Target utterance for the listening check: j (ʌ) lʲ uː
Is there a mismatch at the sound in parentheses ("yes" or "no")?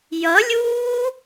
no